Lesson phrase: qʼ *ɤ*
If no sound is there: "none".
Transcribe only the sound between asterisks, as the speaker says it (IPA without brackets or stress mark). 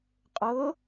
ɤ